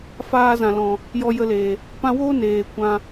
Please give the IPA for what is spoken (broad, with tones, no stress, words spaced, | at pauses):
faː˧zã˨lɔ̃˨ | jɔ˧jə˧leː˨ | pã˧woː˦ neː˨kʷã˧